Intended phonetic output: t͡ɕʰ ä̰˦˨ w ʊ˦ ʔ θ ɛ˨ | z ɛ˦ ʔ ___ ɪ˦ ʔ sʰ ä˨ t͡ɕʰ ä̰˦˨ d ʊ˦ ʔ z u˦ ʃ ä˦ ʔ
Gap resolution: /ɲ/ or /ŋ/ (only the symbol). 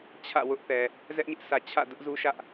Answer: ɲ